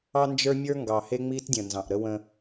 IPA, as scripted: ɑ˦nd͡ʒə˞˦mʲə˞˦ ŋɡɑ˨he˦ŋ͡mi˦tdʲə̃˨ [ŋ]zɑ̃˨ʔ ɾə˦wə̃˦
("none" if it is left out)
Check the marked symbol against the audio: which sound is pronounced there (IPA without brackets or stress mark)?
n